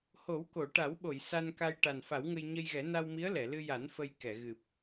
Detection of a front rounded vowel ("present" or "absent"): absent